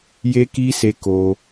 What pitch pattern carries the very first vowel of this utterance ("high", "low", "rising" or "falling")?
high